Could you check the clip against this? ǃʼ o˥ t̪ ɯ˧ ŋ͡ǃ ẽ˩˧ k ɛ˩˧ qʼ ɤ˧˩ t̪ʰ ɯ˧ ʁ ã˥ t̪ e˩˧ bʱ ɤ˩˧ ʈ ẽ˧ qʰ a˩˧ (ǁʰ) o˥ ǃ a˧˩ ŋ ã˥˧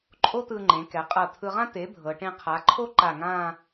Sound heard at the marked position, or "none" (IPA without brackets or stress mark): ǃʰ